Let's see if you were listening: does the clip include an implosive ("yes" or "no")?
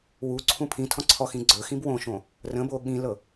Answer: yes